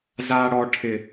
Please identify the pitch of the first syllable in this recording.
high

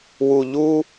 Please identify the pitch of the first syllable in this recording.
low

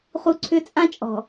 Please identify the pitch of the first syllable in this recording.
high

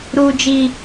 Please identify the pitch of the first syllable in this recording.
high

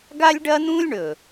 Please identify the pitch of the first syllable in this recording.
high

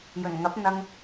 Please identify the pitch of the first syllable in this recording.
low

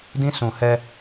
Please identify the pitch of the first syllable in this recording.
high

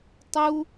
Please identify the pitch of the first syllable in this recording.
high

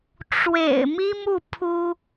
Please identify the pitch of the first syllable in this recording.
low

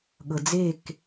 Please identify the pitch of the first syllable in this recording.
low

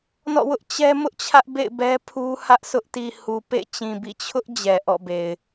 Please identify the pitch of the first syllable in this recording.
falling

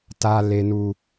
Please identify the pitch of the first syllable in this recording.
high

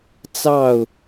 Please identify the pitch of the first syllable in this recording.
falling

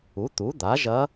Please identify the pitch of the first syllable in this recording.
rising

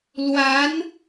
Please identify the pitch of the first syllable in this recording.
rising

